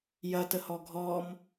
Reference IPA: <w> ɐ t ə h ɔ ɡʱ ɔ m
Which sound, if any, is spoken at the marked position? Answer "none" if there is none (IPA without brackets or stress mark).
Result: j